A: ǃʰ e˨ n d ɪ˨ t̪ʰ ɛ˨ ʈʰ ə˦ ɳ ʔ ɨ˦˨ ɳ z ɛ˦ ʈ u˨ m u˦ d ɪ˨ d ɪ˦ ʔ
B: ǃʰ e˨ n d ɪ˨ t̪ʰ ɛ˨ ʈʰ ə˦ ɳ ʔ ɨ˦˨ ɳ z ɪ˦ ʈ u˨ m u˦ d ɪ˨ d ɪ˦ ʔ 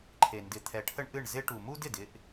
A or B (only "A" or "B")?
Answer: B